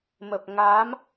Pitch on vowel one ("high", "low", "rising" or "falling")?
low